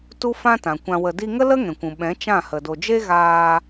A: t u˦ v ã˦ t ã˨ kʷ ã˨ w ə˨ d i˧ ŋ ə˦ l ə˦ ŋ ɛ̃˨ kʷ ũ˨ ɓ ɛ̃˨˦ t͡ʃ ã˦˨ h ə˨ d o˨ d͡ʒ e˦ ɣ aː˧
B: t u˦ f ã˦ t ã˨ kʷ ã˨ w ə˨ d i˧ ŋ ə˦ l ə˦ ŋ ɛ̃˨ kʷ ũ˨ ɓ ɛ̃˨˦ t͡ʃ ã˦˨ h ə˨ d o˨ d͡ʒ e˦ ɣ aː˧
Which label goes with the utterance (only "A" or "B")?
B